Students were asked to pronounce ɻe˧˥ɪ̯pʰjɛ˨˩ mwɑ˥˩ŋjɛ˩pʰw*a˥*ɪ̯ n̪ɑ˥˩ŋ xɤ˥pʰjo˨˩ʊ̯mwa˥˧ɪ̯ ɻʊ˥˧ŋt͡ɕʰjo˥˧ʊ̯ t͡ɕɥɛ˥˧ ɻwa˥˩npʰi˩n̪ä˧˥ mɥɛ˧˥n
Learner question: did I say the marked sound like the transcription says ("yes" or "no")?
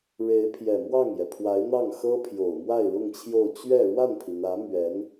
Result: no